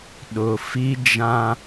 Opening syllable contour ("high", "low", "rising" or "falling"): low